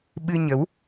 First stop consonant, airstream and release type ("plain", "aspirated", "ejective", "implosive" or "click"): implosive